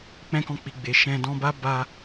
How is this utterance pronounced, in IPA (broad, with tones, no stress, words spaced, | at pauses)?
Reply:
k͡pɛ̃˦kɔ̃˦˨ k͡pi˨ ɡ͡be˨ʃɛ̃˧ dɔ̃˧ba˦ ba˧